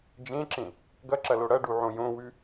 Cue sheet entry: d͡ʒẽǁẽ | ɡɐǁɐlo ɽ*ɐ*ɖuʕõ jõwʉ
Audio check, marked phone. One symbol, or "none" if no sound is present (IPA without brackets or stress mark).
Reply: ɐ